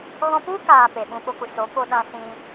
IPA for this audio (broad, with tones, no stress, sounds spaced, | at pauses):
ɣ ɔ̃˧ p u˦ k aː˨ p e˨ ɓ ũ˧ ɓ o˧ k u˨ s o˨˦ p o˧ ɗ ã˧ s ĩ˧